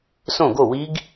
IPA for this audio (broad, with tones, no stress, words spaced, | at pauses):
sõ˥˨ɡo˥˨wi˦˥ɡ